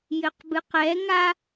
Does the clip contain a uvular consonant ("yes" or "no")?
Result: yes